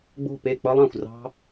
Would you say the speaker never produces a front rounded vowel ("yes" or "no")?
yes